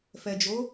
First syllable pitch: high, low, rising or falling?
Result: low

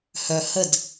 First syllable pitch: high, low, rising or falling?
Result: low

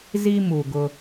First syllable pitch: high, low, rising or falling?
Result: high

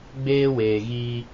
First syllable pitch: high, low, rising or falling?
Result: high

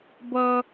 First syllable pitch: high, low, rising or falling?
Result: high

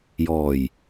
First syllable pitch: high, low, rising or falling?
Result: low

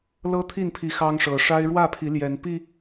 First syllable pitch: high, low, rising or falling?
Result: high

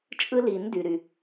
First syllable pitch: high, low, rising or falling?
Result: high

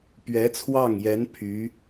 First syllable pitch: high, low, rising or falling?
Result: rising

